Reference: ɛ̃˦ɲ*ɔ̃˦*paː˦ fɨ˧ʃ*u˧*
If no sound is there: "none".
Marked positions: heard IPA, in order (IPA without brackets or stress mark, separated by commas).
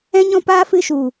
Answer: ɔ̃˦, u˨